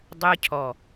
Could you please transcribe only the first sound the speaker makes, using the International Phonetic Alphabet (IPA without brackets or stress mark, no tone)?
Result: dˤ